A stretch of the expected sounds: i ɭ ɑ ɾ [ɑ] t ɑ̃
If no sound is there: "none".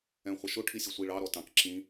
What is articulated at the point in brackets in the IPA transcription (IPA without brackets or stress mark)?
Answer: ɔ